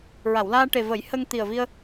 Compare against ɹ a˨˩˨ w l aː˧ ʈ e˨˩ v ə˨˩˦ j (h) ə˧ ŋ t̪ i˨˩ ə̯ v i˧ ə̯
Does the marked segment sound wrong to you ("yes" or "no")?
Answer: no